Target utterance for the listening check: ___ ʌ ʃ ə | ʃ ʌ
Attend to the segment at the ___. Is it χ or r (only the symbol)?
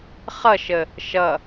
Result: χ